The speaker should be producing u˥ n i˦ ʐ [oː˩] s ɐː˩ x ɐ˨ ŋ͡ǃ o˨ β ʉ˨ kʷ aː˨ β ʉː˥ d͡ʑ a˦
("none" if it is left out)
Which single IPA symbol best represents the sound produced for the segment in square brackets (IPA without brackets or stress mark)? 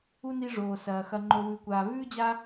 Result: oː˩